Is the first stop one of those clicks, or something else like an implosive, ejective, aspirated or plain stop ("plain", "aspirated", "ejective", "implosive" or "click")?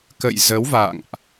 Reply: plain